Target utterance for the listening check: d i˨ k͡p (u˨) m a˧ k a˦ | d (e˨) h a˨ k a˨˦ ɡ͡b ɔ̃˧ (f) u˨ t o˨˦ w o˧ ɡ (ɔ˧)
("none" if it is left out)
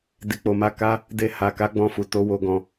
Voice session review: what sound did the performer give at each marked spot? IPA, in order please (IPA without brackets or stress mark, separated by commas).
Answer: o˨, e˧, f, ɔ̃˧